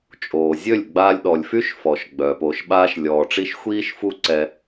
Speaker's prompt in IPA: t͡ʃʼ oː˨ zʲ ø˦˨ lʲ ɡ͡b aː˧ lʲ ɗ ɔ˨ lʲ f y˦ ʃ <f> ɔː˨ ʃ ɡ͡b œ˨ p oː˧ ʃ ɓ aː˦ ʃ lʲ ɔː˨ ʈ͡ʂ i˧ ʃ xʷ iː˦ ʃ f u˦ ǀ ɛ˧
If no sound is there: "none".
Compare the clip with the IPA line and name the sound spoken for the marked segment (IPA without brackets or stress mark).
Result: f